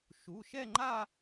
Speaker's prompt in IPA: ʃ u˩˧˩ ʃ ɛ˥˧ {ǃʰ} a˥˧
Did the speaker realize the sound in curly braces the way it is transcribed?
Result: no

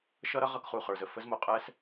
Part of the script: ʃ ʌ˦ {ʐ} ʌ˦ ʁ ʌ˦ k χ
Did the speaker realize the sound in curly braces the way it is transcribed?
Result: no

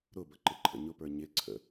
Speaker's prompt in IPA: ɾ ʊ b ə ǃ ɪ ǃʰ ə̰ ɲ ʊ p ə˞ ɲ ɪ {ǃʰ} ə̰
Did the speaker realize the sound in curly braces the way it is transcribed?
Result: no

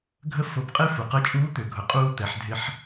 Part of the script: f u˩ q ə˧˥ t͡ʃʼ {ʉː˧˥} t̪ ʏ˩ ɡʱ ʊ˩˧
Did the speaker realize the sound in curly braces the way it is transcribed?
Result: no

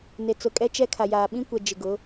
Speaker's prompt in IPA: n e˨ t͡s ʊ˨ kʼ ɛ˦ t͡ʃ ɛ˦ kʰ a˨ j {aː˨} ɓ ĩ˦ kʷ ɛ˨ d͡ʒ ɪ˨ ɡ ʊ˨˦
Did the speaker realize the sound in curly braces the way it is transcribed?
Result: yes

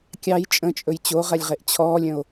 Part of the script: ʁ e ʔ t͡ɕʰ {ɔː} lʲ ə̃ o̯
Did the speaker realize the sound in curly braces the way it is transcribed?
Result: yes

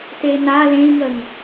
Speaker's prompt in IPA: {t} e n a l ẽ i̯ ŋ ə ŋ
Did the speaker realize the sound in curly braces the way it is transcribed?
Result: yes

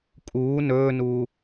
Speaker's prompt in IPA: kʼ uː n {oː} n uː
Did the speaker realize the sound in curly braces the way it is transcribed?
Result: no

